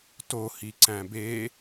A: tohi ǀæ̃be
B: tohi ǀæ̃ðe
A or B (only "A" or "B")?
A